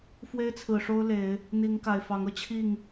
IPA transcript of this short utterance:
f w e˦ ɪ̯ t͡sʰ ɹ̩˨˩ ʂ o˦ ʊ̯ l e˨˦ ɪ̯ | n̪ i˨˦ ŋ k a˨˩ ɪ̯ f ɑ˨˦ ŋ ɤ˧ t͡ɕʰ i˥˨ ŋ

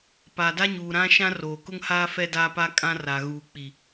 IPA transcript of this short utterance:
p aː˨ d a˦ ɲ uː˨ ɾ ã˦ ʃ ã˦ r oː˨ k ʊ˦ ŋ h aː˦ f ɛ˦ d aː˦ p a˦ kʼ ã˦ r a˨ ɣ uː˨ k͡p i˨

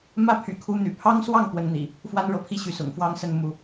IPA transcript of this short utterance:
m ä˦ pʰ y̰˨˩ kʰ u˨˦ n̪ y̰˨˩ pʰ ɑ˦ ŋ s w ɑ˥˨ ŋ p w ə˨˦ n n̪ ḭ˨˩ | f w a˦ n ɻ ɤ˥˨ pʰ i˦ ɕ y˨˦ s ʊ̰˨˩ ŋ f w ɑ˦ ŋ s ə˥˨ n m u˨˦

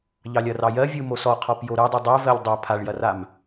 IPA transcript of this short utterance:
ʎ ɑ lʲ ɐ r ɑ j ɜ vʲ ɯ m o s ɔ qʰ ɔ p j o ɾ ɯ dˤ u dˤ ɜ v ɜ lʲ dˤ a pʰ a ɭ j ɐ r a m

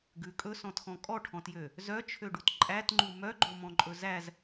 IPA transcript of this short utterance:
ɡ ʉ kʼ ɵ s ɔ̃ t x ɔ̃ kʼ ɔ ʈʰ ɔ̃ t j ø | z œ t͡ʃʰ ø ɖ u t ǃʼ æ t ŋ͡ǃ u m œ ɡ͡ǃ o m ɔ̃ ǃʼ ɵ z æ z

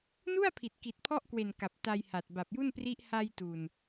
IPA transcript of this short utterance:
n u˥˩ a̯ pʰ i˨˩ t̚ k i˨˩ t̚ pʰ ɔ˥˩ ʔ k w e˨˩ n k a˨˩ p̚ t a˧ j h a˨˩ t̚ b a˨˩ p̚ j u˥˩ n p r i˦˥ ʔ h a˧ j t u˨˩ n

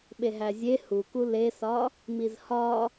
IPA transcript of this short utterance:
ɓ e ɦ æ zʲ e h u k u l e s ɒ | m i z h ɒ

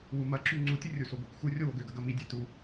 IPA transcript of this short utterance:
w u m ɐ ǁ y ŋ͡ǀ u tʲ ə rʲ u s o ɡʷ i kʷ x u rʲ o w o ɡ ø ɡ ɐ ɡ ɐ m i dʲ ɛ t u

